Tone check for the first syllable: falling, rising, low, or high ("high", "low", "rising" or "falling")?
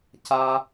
high